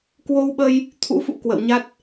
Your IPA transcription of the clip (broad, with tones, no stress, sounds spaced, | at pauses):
k w o˧ w ɓ ə˧ j | t̪ʰ ṵ˧˥ f ṵ˧˥ k w ə̰˧˨ w ɲ a˦˥ t̚